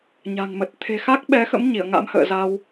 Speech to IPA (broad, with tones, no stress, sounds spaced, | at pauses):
ɲ a̤˨˩ ŋ m ə˨˩ t̚ t̪ʰ e̤˨˩ x a˦˥ k̚ ɓ ɛ˨˦ x ə̰˧˥ m ɲ i˧˩ ə̯ ŋ a̰˧˥ m h ə̰ː˧˨ z a˧ w